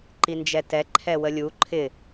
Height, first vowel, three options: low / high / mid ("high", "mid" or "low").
high